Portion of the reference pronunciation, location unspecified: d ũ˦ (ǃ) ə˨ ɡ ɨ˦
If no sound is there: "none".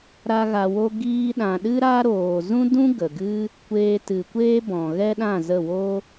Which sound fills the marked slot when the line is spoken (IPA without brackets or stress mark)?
ɡ